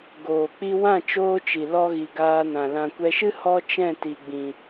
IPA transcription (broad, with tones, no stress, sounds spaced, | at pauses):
ɡ oː˨ k͡p i˧ w ã˦˨ t͡ʃ oː˦ t͡ʃ i˨ l ɔ˧ ɣ i˨ ɡ aː˧ n ã˨ l ã˨ kʷ ɛ˧ ʃ ɨ˦ h ɔ˧ t͡ʃ ɛ̃˦˨ t i˨ ɡ͡b ĩ˨